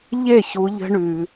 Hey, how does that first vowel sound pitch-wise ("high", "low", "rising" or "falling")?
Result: falling